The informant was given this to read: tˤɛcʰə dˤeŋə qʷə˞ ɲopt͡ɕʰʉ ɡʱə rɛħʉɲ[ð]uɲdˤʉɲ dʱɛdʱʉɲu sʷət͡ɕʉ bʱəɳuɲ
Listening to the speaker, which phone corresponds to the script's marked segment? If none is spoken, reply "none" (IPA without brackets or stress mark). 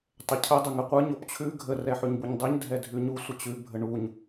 b